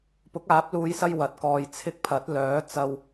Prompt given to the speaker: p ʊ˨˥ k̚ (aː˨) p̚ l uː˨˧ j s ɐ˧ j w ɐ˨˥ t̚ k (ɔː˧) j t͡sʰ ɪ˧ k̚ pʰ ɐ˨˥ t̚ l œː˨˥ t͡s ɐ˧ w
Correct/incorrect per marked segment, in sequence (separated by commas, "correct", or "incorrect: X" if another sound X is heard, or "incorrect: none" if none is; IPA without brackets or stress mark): incorrect: aː˨˥, correct